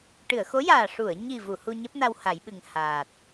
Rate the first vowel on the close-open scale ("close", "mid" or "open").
close